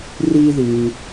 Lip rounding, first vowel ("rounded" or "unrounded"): unrounded